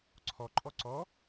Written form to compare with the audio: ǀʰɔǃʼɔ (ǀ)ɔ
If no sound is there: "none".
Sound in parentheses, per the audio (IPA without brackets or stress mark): ǀ